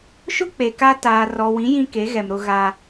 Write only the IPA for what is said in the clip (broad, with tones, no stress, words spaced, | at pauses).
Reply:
ʃʊ˦ k͡pe˨ka˦ taː˨rɔ˨wĩ˨˦ jĩ˦ke˨˦ɣɛ˨m ɾʊ˦ɣaː˦